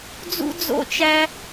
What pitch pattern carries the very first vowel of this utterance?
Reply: high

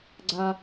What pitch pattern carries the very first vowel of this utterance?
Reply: low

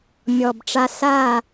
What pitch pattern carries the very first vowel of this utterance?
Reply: low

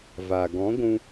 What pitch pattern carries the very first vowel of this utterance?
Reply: low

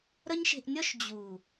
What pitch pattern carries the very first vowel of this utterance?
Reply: high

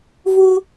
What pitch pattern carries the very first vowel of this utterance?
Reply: high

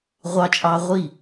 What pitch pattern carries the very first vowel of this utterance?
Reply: high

